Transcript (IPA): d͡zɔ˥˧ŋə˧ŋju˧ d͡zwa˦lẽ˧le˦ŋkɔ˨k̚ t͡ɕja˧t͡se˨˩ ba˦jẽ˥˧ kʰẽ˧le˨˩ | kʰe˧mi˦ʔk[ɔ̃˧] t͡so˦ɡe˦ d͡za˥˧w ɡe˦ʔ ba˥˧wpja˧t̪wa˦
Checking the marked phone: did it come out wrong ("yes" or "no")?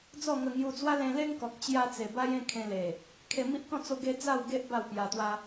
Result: yes